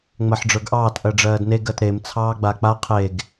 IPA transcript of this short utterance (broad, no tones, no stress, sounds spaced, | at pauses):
ŋ͡m ɜ ħ ɖ͡ʐ ə˞ ɡ ʔ ɑː t ʔ ɜ ɖ͡ʐ ɜː d n e ɡ ɜ t ɾ e m t͡sʰ ɑː ɡ͡b a k͡p a qʰ e ɡ